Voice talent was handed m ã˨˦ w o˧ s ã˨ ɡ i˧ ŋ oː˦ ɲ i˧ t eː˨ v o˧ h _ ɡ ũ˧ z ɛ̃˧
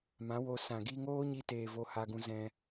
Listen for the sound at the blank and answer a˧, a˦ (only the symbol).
a˧